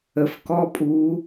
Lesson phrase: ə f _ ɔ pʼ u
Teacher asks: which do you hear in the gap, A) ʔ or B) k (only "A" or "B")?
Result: B